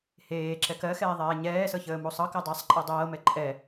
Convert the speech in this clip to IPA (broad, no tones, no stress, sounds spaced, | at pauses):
h eː ǁ ɛ k ɜ x ɛː ðˤ ɛː ɲ ɛː s ɤ ç əː m u sˤ ɤ k ə dˤ e sˤ ǃʼ ɜ dˤ ɤː m ɛ ǃʼ ɛ